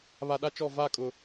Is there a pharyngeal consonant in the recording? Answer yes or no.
no